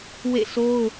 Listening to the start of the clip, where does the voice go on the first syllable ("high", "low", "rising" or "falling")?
falling